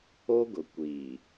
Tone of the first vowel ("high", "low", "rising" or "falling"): high